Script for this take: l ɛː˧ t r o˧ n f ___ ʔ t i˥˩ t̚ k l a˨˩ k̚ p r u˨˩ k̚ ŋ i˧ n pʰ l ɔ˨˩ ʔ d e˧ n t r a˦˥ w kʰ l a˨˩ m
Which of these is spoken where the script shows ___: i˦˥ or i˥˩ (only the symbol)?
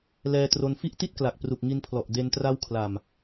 i˦˥